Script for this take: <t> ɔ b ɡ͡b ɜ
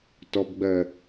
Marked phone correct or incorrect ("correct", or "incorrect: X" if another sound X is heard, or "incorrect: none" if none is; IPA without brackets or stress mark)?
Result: correct